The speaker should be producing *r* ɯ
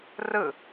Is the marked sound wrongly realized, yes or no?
no